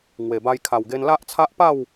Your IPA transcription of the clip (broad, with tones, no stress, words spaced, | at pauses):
ŋwe˨˩ba˧j kʰa˨˩wɡe˧nla˦ʔ t͡sʰa˦ʔpa˥˧w